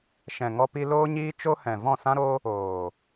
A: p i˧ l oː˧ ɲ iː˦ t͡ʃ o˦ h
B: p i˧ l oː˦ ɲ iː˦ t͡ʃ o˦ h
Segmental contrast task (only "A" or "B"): B